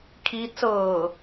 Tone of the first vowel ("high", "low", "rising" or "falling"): rising